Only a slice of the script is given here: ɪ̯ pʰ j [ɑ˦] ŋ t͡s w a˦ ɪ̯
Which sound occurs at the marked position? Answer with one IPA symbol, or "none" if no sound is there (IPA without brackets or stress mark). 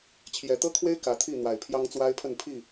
ɑ˦